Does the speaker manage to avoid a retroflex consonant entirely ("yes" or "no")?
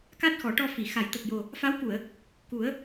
no